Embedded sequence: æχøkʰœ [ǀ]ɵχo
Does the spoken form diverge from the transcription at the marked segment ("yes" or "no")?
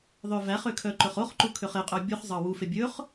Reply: yes